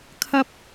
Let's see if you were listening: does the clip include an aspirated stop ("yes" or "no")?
yes